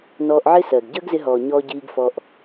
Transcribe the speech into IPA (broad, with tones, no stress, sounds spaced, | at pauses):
n ɔː˧ ʔ ʕ ɪ˦ s ɜ˨ ɡ ɟ əː˦ ɡ z ɪ˧ ɦ ɔː˨ ɲ ɔː˧ ɟ iː˧ ɡ f ɔ˧ ʔ